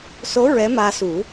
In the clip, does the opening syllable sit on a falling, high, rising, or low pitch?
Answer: rising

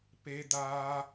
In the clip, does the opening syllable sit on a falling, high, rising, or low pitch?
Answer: high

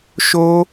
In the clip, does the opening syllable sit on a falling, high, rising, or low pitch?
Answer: high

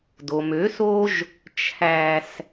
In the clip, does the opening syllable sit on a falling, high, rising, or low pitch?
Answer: low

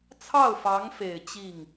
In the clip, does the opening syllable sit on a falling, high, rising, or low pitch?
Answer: falling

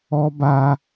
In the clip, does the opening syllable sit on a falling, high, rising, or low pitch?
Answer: high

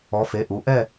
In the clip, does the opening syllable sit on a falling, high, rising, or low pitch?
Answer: rising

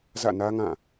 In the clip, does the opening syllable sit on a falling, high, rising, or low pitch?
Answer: falling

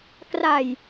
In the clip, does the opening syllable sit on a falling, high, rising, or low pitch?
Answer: low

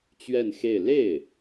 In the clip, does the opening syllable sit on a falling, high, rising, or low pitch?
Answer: falling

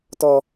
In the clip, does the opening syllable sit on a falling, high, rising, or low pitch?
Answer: high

